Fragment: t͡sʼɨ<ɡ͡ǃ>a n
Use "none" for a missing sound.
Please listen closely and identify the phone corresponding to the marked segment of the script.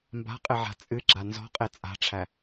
ɡ͡ǁ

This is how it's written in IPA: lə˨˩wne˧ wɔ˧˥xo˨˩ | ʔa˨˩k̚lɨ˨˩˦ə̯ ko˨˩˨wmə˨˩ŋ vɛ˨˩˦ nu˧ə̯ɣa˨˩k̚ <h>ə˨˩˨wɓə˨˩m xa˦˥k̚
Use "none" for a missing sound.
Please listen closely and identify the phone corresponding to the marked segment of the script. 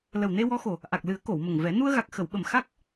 x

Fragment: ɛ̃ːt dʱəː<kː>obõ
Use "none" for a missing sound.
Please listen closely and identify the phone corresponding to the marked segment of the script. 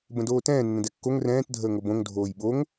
ŋ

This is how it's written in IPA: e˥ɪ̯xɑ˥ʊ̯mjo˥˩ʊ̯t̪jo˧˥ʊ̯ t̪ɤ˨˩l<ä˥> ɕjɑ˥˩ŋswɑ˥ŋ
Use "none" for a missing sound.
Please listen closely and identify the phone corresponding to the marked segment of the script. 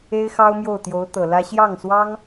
ä˥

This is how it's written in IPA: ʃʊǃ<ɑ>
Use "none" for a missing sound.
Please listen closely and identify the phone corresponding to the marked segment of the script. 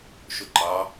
ɑ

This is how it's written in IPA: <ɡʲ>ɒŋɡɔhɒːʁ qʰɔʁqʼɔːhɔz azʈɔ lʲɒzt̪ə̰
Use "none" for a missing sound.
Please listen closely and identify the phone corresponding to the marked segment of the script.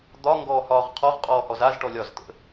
d̪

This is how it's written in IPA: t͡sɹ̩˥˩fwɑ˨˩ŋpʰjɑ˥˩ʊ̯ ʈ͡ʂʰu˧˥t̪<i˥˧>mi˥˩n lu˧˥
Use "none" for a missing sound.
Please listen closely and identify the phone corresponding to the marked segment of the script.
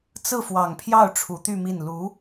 y˥˧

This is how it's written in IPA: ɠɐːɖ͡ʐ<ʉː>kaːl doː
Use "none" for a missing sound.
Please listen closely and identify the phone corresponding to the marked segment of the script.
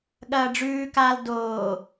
ʉː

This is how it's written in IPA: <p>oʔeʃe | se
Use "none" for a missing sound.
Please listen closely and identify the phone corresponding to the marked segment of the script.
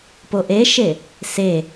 p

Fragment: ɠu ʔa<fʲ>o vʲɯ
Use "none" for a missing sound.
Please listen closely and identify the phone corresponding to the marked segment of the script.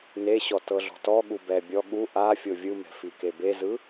fʲ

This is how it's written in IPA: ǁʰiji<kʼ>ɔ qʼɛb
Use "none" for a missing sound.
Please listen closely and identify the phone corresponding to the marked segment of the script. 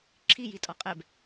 tʼ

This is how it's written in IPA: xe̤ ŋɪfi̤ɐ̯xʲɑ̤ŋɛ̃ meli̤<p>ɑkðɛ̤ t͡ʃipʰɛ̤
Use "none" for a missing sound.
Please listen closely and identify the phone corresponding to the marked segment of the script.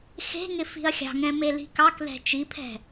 k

